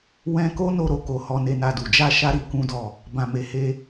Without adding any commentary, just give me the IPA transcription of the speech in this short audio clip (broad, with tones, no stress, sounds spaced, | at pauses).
w ɛ̃˧ k o˦ n o˧ ɾ o˨ k o˨ h ɔ˧ n e˧ n a˧ d u˨ d͡ʒ a˧ ʃ a˦ ɾ i˧ k ũ˦ d ɔ˦˨ | b ã˨ m e˨ h e˧